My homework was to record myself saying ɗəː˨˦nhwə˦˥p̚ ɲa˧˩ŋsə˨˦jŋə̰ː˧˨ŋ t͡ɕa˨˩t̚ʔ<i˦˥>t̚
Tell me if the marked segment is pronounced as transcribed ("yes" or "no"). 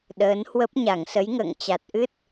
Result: no